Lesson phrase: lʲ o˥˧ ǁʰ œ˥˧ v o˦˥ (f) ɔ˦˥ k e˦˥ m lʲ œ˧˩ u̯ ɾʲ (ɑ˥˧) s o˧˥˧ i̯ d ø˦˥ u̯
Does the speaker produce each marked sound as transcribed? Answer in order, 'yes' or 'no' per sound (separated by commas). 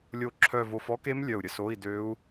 yes, no